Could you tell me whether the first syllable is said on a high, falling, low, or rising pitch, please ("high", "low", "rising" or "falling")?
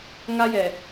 high